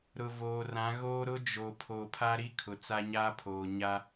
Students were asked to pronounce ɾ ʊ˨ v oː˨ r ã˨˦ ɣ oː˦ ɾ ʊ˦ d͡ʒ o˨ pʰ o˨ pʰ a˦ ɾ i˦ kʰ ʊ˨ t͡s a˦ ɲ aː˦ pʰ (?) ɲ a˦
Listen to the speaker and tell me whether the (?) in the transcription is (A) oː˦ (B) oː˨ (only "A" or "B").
B